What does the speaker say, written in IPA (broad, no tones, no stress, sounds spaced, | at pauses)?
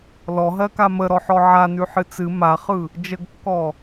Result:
l ɔ ɦ ɜ k a m ə ɾ ɔ ħ ɔ ʕ a n ʉ ħ ɨ t͡s ɨ m a χ ɯ | d͡ʒ ə ɡ kː ɔ